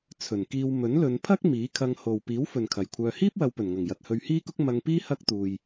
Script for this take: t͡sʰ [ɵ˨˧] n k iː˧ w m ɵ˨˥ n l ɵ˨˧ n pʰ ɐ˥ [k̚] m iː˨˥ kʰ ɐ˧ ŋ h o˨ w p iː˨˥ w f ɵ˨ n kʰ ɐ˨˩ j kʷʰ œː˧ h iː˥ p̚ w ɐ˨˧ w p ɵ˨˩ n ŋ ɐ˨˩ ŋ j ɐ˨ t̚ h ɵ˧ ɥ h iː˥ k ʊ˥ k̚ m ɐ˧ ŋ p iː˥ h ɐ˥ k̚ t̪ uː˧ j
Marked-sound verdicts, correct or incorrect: incorrect: ɵ˨˩, correct

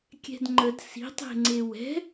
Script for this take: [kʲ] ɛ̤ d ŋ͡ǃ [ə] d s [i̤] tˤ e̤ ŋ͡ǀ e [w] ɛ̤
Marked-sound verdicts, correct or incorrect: correct, correct, correct, correct

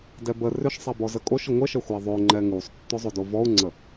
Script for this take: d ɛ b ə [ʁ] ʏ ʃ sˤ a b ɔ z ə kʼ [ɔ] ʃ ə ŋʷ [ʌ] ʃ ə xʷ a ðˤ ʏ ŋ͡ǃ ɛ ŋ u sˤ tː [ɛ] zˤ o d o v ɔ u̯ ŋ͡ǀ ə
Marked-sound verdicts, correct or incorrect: incorrect: r, incorrect: o, incorrect: ə, incorrect: ʏ

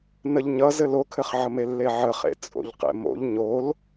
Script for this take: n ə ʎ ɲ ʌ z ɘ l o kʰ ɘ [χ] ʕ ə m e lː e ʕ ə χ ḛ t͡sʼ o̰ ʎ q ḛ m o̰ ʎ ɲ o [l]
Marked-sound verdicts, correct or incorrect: correct, correct

